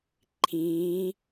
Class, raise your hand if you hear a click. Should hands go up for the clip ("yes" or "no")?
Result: yes